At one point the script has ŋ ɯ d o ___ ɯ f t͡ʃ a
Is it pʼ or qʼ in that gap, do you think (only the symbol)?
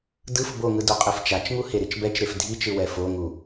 qʼ